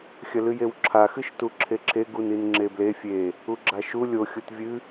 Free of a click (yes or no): no